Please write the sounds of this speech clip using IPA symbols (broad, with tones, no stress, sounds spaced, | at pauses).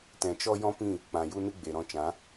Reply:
t ɛ̃˨ t͡ʃ ɔ˦ j ɔ̃˦ p ĩ˦˨ | k͡p ã˨ j u˦ n ɨ˦ ɡ͡b e˨ ɾ ɔ̃˧ t͡ʃ ã˨˦